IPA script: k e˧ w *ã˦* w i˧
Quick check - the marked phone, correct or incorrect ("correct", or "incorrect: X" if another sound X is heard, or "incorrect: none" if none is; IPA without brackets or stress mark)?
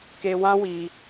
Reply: correct